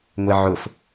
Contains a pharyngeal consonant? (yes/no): yes